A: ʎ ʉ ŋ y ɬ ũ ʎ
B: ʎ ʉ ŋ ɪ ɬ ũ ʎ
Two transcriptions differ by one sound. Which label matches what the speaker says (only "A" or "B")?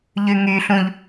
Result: A